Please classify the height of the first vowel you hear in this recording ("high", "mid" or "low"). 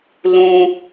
high